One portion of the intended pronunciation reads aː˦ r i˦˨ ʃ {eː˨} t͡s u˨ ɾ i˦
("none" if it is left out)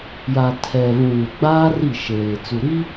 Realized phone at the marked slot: eː˨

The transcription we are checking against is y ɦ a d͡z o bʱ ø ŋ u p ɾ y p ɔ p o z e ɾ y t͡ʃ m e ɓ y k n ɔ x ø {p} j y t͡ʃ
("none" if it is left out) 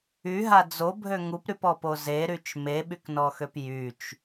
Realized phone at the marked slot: p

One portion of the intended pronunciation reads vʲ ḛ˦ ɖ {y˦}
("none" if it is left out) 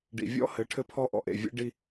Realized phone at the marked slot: i˦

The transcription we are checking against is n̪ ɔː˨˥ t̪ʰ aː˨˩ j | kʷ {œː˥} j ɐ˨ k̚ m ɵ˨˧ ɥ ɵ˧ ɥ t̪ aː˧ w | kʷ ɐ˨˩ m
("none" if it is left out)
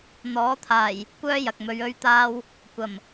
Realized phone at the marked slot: œː˥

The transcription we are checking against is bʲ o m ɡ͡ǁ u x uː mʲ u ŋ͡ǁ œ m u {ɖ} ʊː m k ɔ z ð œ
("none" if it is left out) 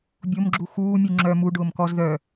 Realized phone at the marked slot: ɖ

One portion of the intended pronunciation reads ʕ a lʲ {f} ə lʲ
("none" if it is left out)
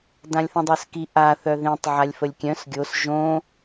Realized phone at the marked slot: f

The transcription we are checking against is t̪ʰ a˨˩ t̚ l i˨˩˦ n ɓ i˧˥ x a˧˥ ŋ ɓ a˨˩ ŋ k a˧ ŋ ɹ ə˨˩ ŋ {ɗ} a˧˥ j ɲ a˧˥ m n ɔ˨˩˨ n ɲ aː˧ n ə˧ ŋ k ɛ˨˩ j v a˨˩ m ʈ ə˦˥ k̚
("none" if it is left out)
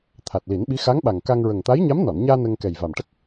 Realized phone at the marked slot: t̪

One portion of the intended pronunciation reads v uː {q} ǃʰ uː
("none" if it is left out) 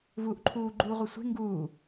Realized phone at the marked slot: ʔ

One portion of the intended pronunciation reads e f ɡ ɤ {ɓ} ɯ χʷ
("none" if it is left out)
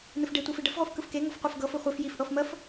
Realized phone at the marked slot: f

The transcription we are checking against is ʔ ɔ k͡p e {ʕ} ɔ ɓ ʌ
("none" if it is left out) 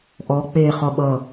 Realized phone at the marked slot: χ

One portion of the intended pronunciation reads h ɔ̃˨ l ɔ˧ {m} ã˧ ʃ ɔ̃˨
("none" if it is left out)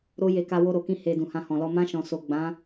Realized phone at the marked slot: m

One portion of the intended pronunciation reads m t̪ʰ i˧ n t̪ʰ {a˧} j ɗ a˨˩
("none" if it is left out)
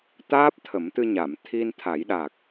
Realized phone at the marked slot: a˨˩˦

